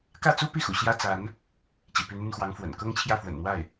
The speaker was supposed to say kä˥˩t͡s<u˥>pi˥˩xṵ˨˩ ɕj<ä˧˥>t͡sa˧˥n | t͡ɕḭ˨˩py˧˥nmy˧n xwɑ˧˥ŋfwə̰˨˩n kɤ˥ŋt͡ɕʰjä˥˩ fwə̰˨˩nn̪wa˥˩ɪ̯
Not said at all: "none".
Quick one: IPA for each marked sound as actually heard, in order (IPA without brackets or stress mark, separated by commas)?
u˥, ä˥